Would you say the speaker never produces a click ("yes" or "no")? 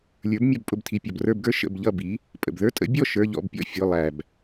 yes